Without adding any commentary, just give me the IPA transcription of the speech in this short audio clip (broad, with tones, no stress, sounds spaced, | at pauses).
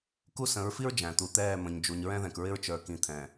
k u˦˨ s ə̃˨˦ ɹ f i˦ ɹ d͡ʒ æ̃˨ t̪ u˨ t̪ ɛː˦˨ m ə̃˨ ɲ d͡ʒ u˨ ɲ ɹ ɛ̃˦ ð ɛ̃˨ k ɹ ɪ˦ ɹ t͡ʃ ə˞˨ k ĩ˨ t̪ʰ ɛ̃˨